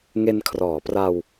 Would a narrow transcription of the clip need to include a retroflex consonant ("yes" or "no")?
no